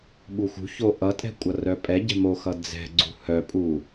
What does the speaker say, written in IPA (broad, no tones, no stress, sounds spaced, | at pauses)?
ɓ u x ṳ ç o ʔ ʌ tʼ ɛ̤ kʷʼ ʌ r œ pʼ ɛ ɟ ɛ̤ m o x ʌ d͡z ɛ̤ ɡ͡ǀ ṳ h œ pʼ u